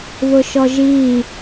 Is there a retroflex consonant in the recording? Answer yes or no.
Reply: no